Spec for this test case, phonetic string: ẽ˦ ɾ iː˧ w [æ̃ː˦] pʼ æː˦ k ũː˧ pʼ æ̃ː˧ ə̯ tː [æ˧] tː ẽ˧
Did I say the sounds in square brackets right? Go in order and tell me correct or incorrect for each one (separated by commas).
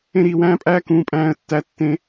correct, correct